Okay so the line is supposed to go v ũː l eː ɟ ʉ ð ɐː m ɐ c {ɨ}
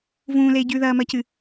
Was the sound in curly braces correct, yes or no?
yes